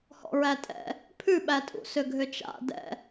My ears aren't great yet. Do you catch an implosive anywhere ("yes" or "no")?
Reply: yes